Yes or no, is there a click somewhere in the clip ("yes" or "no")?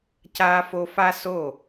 no